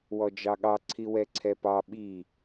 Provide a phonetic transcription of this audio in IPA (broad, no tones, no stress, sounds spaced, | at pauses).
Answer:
w ɔ d͡ʒ ɑ ɠ ɑ ǀʰ i w ɛ ǀʰ ɛ p ɑ ɓ i